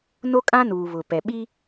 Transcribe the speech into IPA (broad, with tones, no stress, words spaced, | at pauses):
no˦kʼã˦nuː˨ βʊ˨ pɛ˨ ɓi˦